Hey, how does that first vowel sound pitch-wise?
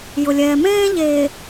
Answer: low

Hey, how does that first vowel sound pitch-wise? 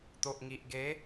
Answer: low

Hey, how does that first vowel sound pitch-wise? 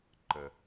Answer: low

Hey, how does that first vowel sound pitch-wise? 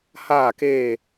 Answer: falling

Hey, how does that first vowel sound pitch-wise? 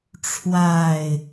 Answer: falling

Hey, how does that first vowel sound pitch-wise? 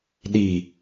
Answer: low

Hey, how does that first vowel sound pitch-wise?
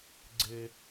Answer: high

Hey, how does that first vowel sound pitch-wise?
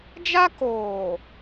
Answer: high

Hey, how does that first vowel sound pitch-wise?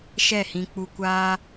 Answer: falling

